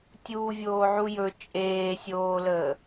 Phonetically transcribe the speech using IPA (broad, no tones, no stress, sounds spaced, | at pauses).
tʲ uː vʲ oː ʕ u j ɵ t͡ʃʼ eː sʲ oː l əː